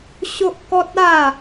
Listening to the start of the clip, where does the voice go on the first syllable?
high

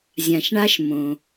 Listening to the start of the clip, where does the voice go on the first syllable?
low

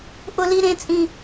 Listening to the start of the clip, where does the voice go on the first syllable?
high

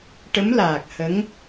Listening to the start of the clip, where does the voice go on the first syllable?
rising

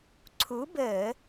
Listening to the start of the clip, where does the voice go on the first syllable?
rising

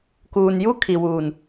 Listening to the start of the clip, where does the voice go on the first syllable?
low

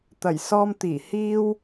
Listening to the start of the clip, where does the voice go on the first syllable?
low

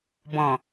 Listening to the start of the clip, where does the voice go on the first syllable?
low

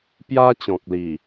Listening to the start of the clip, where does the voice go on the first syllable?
high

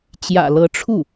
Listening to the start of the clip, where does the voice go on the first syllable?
low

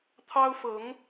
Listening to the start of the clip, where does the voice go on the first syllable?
high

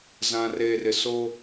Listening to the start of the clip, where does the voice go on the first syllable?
low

